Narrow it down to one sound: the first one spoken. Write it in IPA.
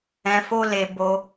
ɛ̃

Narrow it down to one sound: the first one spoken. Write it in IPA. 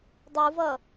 dˤ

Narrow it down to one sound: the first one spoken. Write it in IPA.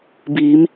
b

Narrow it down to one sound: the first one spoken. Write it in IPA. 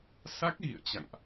s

